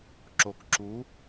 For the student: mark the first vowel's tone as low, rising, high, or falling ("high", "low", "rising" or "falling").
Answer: low